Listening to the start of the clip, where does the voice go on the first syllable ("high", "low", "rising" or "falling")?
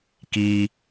high